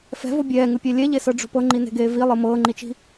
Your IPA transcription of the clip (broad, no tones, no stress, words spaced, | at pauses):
fɛ̤vo bʲɛːŋɯpʲɛ lʲɛʎesɤɖ͡ʐo̤ pɤŋ͡ǃine̤ɡeː vilˠɯ mɤːŋ͡ǃit͡ʃi̤